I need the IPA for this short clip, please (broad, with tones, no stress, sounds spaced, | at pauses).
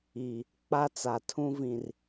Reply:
i˨ | k͡p a˦ t͡s a˨ tʰ ũ˦ v ĩ˨ r